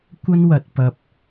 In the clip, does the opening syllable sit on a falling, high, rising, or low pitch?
high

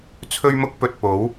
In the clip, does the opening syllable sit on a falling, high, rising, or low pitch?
high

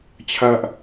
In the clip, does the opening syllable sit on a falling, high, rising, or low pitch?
low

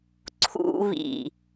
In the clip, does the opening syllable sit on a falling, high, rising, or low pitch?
low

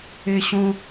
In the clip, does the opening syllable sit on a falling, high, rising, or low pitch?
high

